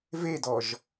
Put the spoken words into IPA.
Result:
v e d ɔ ʒ

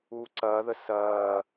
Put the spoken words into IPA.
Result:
uː ǀ ɐː ð ə s ɐː

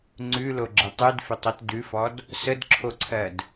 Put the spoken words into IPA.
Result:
ŋ͡ǀ ʉ l o ɡ͡ǁ ə tˤ ʉ d f ɪ tˤ o t d ʉ f ɔ d | s ə d ǁʰ o ǀʰ ɜ d

